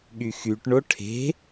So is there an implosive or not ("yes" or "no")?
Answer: yes